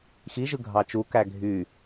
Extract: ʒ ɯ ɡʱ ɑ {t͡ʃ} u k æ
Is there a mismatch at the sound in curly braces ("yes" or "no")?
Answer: no